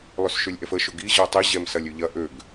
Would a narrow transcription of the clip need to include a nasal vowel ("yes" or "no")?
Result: no